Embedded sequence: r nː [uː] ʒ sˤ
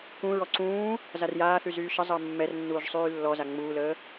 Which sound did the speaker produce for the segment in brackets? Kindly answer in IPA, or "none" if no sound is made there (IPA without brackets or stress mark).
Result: uː